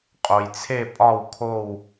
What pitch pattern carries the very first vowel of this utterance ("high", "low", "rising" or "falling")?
low